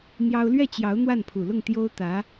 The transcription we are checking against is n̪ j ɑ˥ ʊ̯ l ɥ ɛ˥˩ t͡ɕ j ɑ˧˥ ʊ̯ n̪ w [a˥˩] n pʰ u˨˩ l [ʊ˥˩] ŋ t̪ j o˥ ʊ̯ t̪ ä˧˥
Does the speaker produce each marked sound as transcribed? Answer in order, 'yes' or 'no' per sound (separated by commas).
yes, yes